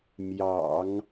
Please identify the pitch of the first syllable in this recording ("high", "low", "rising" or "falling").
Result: low